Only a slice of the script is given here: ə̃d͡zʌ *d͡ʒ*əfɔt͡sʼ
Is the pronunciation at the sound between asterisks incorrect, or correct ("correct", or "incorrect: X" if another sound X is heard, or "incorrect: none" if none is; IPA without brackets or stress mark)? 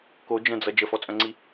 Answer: correct